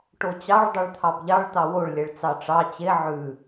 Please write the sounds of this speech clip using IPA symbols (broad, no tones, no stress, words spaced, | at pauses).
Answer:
ʈot͡ɕɑɭ dˤeɭt̪ʰɑbʎɑɭ t̪ɑwoɭ lʲɛɭt͡sɑʈ͡ʂɑ t͡ɕe ʕʉ